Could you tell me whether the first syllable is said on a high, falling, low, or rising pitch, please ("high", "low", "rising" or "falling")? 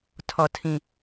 low